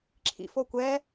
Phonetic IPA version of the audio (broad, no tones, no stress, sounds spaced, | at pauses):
ǁʰ ḭ f o kʷ ɛː